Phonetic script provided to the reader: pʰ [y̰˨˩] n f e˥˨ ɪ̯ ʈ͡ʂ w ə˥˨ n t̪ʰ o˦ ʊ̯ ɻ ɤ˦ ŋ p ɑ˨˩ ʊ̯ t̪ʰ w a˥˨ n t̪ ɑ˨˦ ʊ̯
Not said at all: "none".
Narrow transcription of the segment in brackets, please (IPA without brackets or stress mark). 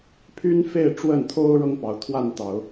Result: y˦